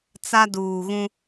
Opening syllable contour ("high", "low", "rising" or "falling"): high